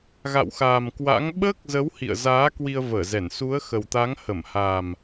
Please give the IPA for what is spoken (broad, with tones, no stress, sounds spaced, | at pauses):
ɣ a̰˧˨ w x aː˨˩ m k w a̰˧˥ ŋ ɓ əː˦˥ k̚ z ə˨˦ w h ḭ˧˨ ə̯ z aː˨˦ k w i˧ ə̯ v əː˧˩ z ɛ˧˩ n s u˨˦ ə̯ x ə˨˩ w t̪ a˨˦ ŋ h ə˧˩ m h a˨˩ m